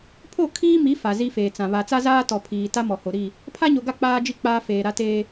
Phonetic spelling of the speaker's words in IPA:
pʰ o˦˨ kʰ iː˦ m i˨˦ f a˨ z i˦ f eː˨ t͡s ã˨ β a˨ t͡s a˦ z aː˦ t ɔ˨ pʰ iː˨ t a˦ m ɔ˨ h o˨ ɾ i˦˨ | pʰ a˦ ɲ o˨ ɡ a˦˨ k͡p aː˦ d͡ʒ i˦ k͡p aː˦ f eː˨ ɾ a˦ t eː˦

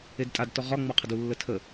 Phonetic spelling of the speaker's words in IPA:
e d tʼ a d t ɔ ʁ ɒ ŋ͡m ɔ qʰ ə d u lː ə tʰ ə

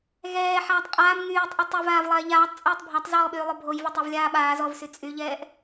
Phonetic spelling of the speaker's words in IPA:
ɣ ɛː ħ aː tˤ qʼ aː m ŋ yː tˤ ʔ y tˤ e v aː v lˠ ɛː ʎ aː tˤ t͡sʼ ɛː tˤ bʱ a tˤ z ɔː ɓ yː lˠ o bʱ o j v ɔ tˤ o v lʲ aː ɓ aː z ɔ v s y t͡sʼ y ʎ ɛː ʔ

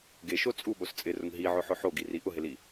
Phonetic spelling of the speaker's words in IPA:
ɡ e ʃ o t͡sʼ u ɓ o s t͡sʼ ɪ r ʊ ŋ ɦ i ʕ ʊ ħ ʊ ħ o ɡ i r i ʔ ʊ ɦ ɪ l i

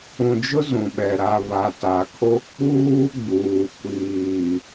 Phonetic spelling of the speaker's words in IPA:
ũ˨ d͡ʒ ʊ˦ z ũ˨ ɓ ɛ˨ ɾ a˨ β a˨ t a˨ kʰ o˦ k͡p uː˦ ɡ͡b uː˨ kʷ iː˨

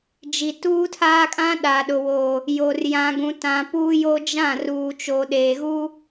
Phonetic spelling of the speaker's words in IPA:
d͡ʒ i˨ t uː˦ tʰ aː˦ kʼ ã˦ ɗ aː˨ ɗ ʊ˨ w o˨ | j o˨ r j ã˨ ɡ ũ˨ t ã˨ p uː˦ j o˦ d͡ʒ ã˦˨ r uː˨ t͡ʃ o˨ ɗ eː˨ ɣ u˦

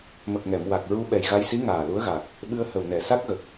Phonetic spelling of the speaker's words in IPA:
m ə˨˩ k̚ ŋ ɛ˨˩˨ m w a˨˩ k̚ ɹ u˧ ɓ ɛ˨˩ j ɣ a˧ j s i˧˥ ŋ aː˨˩ l u˧˥ ə̯ ɣ a˨˩ k̚ | ɓ ɨ˧ ə̯ h ə˨˩ w n ɛ˨˩˨ s a˦˥ k̚ ɣ ə˨˩ k̚

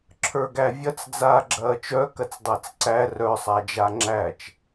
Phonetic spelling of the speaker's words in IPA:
ǁʰ ə˞ ɡ æ vʲ ɐ t͡s d͡z aː ɡ͡ǁ ɐː t͡ʃ œ k ɐ t͡s dˤ ɐː t͡s ǀ æ r œ sˤ a d͡ʒ a ŋ͡ǁ æ t͡ʃ

